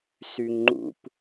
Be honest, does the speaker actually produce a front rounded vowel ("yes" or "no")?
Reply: yes